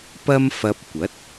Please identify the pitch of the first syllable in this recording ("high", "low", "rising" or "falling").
high